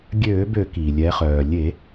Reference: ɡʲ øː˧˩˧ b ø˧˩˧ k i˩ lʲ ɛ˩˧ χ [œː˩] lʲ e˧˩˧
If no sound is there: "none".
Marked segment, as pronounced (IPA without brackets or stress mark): œː˩